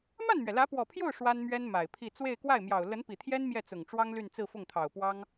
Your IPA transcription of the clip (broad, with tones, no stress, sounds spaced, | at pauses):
m a˥˩ n m ɥ ɛ˩ l ä˧˥ p w ɔ˨˩ pʰ j o˥˩ ʊ̯ ʂ w a˥ n m ɥ ɛ˥ n m a˨˩ ɪ̯ pʰ i˥˧ t͡s w e˥˧ ɪ̯ k w a˥˩ ɪ̯ m j ɑ˨˩ ʊ̯ l ə˧˥ n p i˨˩ t̪ʰ j ɛ˥ n m j ɛ˥˩ t͡s ʊ˨˩ ŋ ʈ͡ʂ w ɑ˥ ŋ l y˥˧ n t͡s ɹ̩˥˧ f ʊ˥˩ ŋ t̪ʰ ɑ˨˩ ʊ̯ p w ɑ˥ ŋ